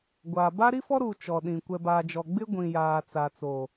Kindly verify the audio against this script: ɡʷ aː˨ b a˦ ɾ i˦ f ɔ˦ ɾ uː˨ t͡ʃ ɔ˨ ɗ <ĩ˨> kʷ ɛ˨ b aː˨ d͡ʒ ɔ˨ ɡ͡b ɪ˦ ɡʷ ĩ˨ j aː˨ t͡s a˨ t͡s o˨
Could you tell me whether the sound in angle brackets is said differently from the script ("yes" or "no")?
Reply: no